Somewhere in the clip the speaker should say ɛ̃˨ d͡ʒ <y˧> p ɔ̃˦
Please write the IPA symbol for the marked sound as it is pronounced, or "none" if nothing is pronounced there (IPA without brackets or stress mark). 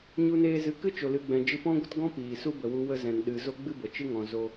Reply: ɨ˧